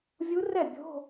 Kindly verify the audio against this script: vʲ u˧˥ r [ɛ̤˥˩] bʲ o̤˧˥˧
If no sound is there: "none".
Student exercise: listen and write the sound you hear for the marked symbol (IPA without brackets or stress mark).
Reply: ɛ˥˩